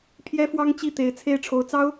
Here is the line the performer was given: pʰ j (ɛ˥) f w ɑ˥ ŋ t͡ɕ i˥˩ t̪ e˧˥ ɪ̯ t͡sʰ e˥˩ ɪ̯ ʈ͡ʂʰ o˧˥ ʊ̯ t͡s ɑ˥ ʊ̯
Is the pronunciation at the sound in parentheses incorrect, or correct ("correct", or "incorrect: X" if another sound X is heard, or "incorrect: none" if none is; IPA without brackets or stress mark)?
correct